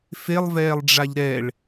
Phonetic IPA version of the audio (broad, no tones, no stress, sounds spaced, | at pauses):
f e lˠ v ɛː lˠ ɖ͡ʐ a ʎ ɾ ɛ ɭ